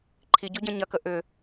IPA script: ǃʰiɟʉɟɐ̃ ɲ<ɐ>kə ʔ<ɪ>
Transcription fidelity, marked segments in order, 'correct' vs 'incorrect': correct, incorrect

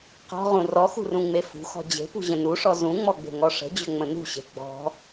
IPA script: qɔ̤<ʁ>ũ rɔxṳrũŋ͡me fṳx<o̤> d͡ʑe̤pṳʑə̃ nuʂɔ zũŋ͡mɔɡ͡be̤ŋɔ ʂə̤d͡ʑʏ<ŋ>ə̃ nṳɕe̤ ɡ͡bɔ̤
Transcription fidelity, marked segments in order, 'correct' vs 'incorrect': correct, incorrect, incorrect

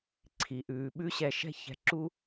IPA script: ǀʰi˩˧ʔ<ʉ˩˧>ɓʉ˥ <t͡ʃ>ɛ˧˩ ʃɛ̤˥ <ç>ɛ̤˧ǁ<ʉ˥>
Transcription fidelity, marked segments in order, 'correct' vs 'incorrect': incorrect, incorrect, correct, incorrect

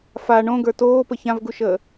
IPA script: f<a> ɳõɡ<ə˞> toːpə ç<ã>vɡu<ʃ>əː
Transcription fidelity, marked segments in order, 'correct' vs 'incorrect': correct, correct, correct, correct

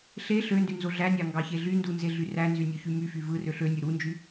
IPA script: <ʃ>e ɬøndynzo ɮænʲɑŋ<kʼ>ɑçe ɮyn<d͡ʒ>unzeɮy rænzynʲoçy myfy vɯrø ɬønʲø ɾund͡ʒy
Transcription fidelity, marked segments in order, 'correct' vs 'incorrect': incorrect, incorrect, incorrect

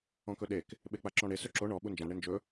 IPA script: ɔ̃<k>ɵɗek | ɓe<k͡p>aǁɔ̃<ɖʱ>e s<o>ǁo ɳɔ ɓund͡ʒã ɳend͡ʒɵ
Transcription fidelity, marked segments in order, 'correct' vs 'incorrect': correct, correct, incorrect, incorrect

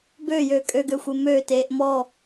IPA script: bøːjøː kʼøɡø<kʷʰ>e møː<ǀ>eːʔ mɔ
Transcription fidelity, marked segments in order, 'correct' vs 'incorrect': incorrect, incorrect

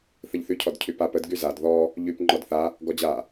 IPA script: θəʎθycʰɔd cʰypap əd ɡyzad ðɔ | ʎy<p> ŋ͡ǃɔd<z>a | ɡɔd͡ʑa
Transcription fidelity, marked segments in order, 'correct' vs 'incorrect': correct, incorrect

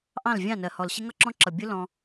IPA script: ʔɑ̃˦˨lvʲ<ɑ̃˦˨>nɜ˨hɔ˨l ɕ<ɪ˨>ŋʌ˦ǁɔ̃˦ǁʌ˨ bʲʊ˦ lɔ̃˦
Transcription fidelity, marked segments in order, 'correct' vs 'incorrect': correct, incorrect

